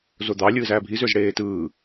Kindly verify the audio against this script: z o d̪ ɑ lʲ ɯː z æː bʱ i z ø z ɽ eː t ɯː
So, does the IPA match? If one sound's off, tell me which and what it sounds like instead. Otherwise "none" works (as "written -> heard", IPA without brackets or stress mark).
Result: none